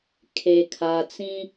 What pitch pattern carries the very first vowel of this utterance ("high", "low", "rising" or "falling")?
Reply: low